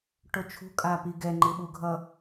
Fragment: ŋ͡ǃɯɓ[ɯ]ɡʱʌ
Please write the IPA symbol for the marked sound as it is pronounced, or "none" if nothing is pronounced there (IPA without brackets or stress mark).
u